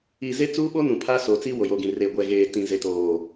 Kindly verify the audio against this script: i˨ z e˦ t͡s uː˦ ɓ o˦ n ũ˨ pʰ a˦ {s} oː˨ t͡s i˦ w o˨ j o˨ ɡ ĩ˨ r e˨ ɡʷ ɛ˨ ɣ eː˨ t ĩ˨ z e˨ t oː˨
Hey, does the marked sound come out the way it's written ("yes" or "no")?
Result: yes